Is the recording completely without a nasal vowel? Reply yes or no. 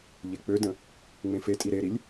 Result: no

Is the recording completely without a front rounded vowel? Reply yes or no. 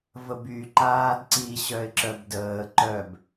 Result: no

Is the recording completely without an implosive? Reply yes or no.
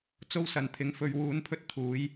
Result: yes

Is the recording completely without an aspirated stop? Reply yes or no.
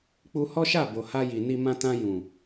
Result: yes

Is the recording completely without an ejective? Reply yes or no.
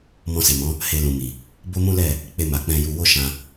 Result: yes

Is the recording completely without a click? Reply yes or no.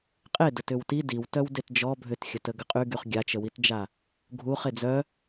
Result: yes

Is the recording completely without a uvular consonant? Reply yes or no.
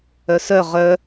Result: no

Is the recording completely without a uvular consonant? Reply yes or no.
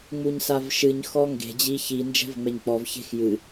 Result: yes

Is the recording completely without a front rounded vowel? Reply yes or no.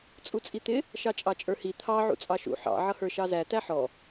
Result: yes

